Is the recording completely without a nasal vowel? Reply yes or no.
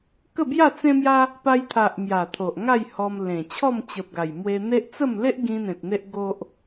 no